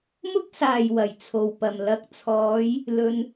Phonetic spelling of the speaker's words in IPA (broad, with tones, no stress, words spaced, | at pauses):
mʊ˥k̚saː˨˩j wɐ˨˩jt͡sʰo˨˩wpɐ˨˩m lɐ˨˥k̚t͡sʰɔː˨˧j | lɵ˨n